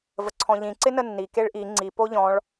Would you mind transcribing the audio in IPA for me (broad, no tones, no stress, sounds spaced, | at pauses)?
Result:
v ə ǀʰ ɔ̃ ʎ ĩ ǀ ɪ n ə nː i k e ɭ ʔ i ŋ͡ǀ i p o ʎ ɔ̃ ɭ